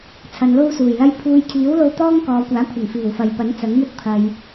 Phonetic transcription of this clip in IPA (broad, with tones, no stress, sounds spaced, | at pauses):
t͡sʰ ɐ˨˧ n l o˥ w s uː˨˩ j l ɐ˥ j pʰ uː˧ j kʰ iː˨˥ w l o˧ w t̪ ɔː˥ ŋ k ɔː˨˧ kʷ aː˨˥ kʷʰ ɐ˨˩ ŋ f iː˨˩ w f ɐ˨˧ j p ɐ˨˥ n t͡s ɐ˨˥ ŋ m ɵ˥ t̚ pʰ ɐ˨ j